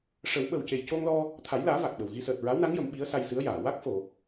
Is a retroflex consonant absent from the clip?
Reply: no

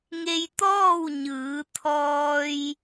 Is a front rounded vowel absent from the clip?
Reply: yes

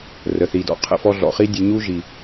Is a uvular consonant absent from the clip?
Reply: no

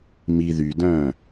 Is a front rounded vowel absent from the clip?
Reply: no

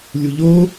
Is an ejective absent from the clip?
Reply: yes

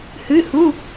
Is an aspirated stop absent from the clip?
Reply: yes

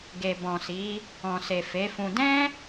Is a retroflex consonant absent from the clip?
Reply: yes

